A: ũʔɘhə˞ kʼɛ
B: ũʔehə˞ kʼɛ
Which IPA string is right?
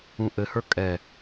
A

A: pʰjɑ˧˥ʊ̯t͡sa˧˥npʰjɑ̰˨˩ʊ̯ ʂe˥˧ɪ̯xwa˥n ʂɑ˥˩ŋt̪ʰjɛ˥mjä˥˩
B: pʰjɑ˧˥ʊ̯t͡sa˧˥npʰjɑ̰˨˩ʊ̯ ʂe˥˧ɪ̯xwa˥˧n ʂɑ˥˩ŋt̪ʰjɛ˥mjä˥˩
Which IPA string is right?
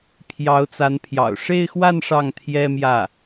B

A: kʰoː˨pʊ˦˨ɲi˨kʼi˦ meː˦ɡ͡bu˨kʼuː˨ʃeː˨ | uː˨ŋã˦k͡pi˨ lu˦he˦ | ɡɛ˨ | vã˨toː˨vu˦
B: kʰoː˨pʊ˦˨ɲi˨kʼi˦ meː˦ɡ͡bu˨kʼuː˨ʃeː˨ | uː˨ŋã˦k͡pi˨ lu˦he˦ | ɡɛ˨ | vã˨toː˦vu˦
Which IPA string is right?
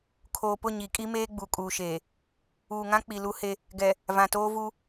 B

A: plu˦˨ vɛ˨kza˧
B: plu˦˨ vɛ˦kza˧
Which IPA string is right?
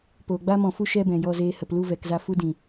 A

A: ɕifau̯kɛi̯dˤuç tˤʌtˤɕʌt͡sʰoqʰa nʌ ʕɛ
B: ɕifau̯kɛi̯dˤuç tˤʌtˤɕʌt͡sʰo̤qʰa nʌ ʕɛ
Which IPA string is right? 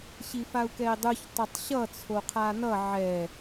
A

